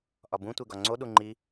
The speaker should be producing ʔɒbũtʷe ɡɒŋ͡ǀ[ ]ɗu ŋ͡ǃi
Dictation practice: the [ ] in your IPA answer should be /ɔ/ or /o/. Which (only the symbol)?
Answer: o